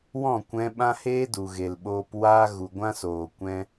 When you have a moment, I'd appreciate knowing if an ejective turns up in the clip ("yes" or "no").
no